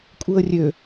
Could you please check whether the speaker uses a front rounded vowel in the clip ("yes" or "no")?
yes